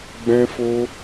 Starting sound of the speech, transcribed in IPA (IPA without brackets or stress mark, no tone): ɡ͡b